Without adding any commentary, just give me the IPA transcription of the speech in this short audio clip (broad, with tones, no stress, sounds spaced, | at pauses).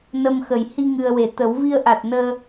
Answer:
n ə˧ m x ə˨˩ j h i˧ ŋ ɨ˨˩ ə̯ w e˨˩˨ t̪ ə˨˩˦ w v i˧ ə̯ ʔ a˨˩ t̚ n əː˧